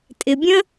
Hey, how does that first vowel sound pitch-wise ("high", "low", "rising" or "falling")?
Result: low